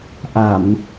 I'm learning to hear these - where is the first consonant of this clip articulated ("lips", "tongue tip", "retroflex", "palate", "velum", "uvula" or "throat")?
throat